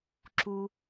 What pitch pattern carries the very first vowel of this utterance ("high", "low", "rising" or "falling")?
low